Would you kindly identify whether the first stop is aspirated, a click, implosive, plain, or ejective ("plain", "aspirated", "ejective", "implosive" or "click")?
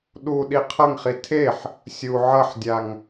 implosive